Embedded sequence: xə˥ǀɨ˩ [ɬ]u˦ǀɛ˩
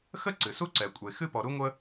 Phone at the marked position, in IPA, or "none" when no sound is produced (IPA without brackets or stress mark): s